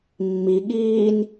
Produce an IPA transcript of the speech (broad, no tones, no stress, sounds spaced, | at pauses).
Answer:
mː i ɠ iː n